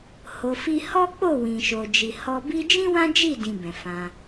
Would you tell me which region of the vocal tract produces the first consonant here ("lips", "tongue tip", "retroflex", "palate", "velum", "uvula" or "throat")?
throat